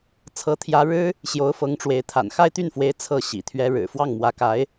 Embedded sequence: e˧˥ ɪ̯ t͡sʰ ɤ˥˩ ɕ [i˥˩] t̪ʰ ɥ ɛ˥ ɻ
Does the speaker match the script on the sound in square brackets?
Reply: no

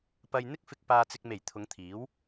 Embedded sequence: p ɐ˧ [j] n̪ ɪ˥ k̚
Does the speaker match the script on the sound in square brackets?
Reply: yes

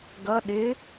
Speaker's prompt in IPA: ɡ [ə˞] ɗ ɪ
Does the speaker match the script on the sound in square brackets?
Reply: no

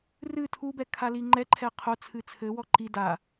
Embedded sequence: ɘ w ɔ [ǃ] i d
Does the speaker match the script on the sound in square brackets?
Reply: yes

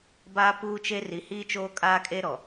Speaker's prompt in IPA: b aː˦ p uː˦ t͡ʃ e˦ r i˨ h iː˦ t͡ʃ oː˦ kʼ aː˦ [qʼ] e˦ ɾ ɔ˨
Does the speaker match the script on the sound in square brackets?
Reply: no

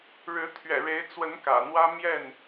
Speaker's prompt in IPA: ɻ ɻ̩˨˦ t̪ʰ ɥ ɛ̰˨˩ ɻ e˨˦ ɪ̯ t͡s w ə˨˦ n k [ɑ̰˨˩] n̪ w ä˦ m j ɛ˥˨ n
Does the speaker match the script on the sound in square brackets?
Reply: no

